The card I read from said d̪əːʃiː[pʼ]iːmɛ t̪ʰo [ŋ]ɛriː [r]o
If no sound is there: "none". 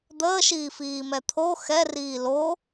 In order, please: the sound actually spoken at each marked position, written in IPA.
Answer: f, x, l

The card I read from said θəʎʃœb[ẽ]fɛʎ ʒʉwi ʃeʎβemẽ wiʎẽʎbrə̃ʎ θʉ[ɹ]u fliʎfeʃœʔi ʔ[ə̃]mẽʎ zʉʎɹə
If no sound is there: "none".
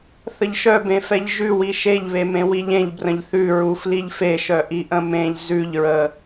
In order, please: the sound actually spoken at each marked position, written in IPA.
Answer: ẽ, ɹ, ə̃

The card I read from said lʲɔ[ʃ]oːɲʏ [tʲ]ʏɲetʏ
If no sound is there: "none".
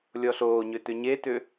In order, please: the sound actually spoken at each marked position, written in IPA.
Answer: ɬ, t

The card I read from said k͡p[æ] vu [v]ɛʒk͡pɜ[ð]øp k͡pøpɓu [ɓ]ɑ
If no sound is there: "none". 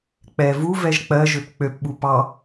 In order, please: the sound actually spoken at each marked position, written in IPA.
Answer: ɛ, v, ʒ, p

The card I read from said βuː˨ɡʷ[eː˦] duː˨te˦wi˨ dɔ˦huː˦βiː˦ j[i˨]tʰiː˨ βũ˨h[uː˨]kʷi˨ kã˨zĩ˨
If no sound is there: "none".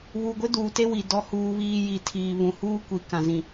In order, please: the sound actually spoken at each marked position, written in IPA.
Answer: e˦, i˨, uː˦

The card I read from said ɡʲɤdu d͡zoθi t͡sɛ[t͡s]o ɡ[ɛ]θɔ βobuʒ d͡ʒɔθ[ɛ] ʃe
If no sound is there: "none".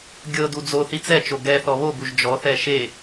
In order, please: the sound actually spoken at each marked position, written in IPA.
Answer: t͡ʃ, ɛ, ɛ

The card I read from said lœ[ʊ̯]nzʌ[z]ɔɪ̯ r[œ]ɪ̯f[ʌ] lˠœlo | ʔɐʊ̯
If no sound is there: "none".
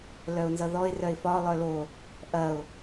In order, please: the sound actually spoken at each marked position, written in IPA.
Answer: ʊ̯, ð, œ, ɒ

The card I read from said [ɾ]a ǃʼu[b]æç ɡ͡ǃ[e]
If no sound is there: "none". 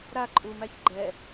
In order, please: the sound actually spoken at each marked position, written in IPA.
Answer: ɾ, m, ɛ

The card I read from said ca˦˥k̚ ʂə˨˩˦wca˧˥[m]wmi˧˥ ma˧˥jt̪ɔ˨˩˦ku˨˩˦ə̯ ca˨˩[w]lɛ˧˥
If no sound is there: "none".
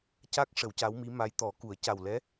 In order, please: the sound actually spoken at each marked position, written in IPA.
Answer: none, w

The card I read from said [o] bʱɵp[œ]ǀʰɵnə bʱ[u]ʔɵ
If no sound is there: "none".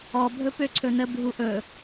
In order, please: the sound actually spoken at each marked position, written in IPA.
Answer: ɔ, ø, u

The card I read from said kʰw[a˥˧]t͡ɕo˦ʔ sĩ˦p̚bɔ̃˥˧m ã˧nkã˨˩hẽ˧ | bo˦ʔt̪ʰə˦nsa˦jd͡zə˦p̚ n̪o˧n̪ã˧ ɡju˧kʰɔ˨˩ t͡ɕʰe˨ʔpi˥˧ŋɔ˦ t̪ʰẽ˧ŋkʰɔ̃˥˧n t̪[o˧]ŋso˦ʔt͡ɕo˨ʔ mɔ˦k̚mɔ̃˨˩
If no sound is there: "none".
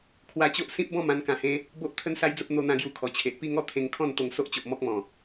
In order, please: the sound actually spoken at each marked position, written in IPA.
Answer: a˧, o˧

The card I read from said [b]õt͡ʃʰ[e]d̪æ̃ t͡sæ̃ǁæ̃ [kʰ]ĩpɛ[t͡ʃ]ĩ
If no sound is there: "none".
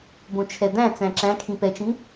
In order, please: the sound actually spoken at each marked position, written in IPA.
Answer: b, ɛ, kʰ, t͡ʃ

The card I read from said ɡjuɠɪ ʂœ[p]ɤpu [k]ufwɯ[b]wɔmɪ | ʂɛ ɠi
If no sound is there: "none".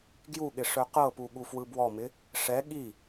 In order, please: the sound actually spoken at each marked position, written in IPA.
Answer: q, ɠ, b

